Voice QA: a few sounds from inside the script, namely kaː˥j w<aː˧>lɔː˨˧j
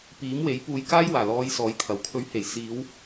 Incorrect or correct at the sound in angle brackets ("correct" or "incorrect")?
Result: incorrect